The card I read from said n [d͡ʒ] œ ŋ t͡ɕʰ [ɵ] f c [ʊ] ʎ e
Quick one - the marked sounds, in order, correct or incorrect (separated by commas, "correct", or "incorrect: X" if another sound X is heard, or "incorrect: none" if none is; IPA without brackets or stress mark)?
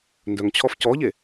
incorrect: d, incorrect: ɔ, incorrect: ɔ